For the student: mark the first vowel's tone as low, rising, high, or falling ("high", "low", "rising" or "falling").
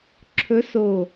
rising